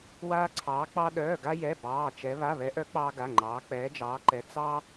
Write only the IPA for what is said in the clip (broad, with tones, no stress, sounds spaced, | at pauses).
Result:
w aː˥ ǀʰ ɑː˧˥ k͡p ɑ˥ ɗ œː˧˥˧ ɡ a˥ j ɛ˧˥˧ b ɑː˧˥˧ t͡ʃ ɛ˧˥ β a˧˥˧ β ɛ˧˥ ʔ œ˧˥ k͡p ɑː˥ ɡ a˧˥˧ ŋ͡ǃ ɑː˧˥ k͡p ɛː˧˥ d͡ʒ ɑː˧˥ ǃ ɛ˧˥ t͡s ɑ˥